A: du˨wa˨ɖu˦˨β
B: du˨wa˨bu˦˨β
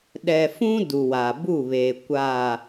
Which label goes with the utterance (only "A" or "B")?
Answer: B